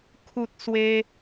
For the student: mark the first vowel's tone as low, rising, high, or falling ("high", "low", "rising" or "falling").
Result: high